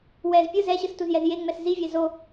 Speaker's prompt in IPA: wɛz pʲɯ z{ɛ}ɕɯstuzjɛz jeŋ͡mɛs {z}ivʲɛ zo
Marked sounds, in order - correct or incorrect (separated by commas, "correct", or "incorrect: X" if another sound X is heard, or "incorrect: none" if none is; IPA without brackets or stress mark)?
correct, correct